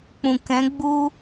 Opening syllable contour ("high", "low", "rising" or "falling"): low